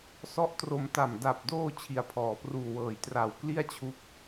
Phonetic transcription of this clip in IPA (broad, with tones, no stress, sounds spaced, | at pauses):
s ɔ˦˥ ʔ t r o˧ m t a˨˩ m d a˨˩ p̚ d oː˧ t͡ɕʰ i˨˩ a̯ pʰ ɔː˩˦ p r uː˨˩ w ɤː˩˦ j t r a˨˩ w k l i˥˩ a̯ t͡ɕʰ u˦˥ k̚